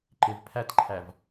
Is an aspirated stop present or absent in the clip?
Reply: present